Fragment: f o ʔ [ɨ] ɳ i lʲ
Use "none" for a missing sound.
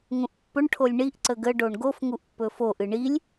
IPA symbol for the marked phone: ɨ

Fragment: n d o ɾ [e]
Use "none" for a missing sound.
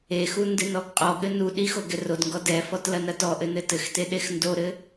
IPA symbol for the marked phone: ɘ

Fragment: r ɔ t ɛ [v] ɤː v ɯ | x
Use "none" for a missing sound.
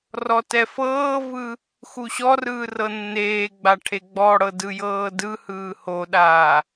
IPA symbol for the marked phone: f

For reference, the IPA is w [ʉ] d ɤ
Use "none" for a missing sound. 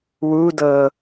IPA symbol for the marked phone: u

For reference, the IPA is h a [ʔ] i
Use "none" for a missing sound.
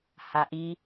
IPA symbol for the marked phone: ʔ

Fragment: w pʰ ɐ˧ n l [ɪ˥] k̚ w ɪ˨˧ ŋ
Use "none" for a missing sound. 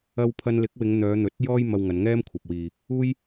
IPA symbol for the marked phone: ɪ˨˥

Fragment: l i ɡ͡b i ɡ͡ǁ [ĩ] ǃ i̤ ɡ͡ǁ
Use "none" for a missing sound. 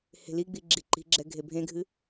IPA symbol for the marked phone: i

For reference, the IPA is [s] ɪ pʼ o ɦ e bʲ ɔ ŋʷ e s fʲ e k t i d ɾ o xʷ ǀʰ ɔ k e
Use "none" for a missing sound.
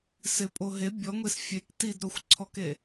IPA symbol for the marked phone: s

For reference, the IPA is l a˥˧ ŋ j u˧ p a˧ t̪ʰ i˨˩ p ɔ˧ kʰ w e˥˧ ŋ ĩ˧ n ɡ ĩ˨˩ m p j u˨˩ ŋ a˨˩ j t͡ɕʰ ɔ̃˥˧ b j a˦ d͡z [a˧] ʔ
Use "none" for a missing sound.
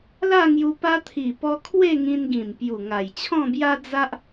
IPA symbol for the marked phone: a˦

